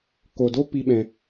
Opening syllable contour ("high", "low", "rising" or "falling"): low